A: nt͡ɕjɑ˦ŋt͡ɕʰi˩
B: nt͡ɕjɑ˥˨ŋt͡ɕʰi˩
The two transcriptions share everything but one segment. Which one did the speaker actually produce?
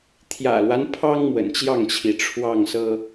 B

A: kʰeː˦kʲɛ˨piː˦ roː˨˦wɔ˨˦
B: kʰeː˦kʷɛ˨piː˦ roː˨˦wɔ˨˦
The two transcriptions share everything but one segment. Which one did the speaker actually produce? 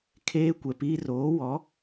B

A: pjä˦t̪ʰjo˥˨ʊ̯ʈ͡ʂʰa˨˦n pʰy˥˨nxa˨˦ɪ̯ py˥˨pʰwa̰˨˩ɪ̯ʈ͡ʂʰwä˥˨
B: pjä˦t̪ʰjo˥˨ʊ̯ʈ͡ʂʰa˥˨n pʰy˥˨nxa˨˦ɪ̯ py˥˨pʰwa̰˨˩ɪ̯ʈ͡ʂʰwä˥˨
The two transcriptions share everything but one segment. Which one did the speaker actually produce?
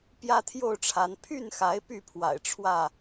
A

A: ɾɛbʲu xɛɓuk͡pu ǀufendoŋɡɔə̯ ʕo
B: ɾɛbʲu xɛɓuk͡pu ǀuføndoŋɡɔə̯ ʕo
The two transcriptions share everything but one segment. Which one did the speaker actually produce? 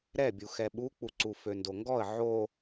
B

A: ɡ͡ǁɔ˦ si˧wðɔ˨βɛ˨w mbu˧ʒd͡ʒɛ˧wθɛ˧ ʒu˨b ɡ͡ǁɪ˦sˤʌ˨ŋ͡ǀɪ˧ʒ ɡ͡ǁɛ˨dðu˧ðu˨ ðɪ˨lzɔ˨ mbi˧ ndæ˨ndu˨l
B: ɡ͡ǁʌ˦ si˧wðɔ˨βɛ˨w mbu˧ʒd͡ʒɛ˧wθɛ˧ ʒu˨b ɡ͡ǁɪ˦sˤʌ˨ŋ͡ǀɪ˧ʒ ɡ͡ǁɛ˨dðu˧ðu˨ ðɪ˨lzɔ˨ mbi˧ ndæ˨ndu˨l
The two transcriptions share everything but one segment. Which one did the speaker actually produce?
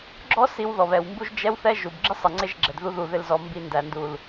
A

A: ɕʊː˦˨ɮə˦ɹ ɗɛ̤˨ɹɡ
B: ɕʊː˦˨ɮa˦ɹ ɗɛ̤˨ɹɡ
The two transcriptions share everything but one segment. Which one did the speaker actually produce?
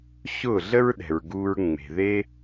A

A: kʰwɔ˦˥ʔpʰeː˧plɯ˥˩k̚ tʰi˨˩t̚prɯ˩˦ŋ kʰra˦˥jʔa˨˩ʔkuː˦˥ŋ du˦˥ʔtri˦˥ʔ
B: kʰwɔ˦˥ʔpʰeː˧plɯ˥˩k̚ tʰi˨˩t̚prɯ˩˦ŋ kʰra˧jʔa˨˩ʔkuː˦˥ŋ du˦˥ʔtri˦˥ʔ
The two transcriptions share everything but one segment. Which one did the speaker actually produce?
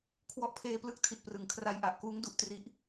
B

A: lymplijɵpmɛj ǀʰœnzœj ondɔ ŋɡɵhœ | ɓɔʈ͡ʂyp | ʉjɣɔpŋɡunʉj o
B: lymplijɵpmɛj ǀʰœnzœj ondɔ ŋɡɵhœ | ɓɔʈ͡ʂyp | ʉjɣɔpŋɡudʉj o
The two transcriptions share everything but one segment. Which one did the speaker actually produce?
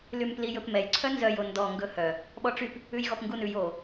A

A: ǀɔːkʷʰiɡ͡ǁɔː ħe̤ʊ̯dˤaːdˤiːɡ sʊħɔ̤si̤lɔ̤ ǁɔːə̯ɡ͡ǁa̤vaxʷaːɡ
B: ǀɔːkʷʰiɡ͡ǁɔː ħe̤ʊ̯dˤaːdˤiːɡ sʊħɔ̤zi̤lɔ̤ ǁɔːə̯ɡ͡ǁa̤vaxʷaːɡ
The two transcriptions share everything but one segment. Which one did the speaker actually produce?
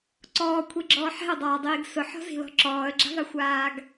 B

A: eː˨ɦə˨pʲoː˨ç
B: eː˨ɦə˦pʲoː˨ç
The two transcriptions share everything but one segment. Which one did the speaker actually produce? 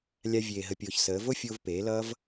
A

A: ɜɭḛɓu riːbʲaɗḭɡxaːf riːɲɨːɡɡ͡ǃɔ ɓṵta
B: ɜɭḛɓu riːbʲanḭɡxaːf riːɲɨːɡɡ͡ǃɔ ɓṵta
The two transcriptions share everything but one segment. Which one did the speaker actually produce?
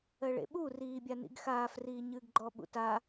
B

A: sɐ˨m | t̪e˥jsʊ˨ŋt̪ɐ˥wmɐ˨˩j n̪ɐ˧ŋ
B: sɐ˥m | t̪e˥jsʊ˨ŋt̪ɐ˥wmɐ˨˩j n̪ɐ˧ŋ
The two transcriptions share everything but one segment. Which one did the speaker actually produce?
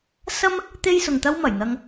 B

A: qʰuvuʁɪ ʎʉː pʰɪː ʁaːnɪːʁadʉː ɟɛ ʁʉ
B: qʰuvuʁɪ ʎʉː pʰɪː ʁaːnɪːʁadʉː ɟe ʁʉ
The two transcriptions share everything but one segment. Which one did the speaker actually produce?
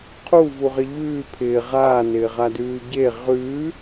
B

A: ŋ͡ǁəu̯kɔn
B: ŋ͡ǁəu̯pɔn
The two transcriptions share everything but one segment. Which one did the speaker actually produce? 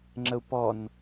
B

